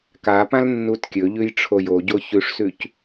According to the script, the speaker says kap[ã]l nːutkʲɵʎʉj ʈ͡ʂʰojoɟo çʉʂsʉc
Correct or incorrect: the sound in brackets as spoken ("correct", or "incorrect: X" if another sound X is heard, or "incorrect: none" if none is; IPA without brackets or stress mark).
correct